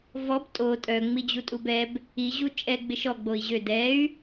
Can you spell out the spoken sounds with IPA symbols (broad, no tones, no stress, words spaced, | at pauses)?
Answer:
vɔb tʼo tʼœ ŋ͡mid͡ʑutʼubɛb | i ʑut͡ʃʼɛ ɡ͡bɪʃɔ ɡ͡boi̯ʑø dɛy̯